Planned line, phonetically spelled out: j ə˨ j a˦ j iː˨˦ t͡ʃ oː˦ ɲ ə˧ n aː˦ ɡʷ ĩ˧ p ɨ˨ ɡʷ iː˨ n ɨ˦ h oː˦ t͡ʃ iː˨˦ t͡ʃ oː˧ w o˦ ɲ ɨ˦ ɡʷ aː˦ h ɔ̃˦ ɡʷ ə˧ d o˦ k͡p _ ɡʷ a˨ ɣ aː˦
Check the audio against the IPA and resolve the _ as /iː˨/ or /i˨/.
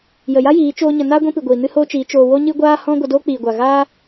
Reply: iː˨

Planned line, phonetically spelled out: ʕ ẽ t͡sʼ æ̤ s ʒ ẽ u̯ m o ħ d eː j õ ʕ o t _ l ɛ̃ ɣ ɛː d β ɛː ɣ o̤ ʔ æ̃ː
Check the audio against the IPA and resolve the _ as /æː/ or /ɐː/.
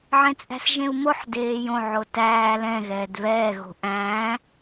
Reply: æː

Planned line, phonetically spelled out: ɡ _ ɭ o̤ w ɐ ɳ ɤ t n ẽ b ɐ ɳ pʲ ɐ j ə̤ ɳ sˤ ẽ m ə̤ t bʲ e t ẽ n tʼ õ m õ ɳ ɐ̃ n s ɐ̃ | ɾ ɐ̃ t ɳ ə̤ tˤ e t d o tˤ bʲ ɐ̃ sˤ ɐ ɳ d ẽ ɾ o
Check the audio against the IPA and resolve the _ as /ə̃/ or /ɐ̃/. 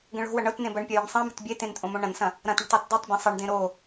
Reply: ə̃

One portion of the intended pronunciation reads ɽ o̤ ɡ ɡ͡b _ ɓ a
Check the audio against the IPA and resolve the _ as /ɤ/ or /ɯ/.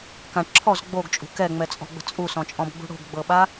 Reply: ɤ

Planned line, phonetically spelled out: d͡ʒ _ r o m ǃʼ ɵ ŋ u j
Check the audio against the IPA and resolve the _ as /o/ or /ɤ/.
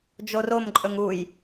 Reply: o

